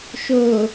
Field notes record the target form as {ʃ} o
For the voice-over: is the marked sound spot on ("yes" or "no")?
yes